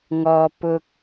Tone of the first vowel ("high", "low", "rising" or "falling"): low